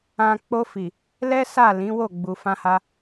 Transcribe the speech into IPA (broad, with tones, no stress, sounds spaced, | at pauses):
ã˨ k͡p o˧ f i˨ | l ɛ˦ s a˦˨ l ĩ˨˦ w o˦˨ ɡ͡b u˨ f ã˧ h a˧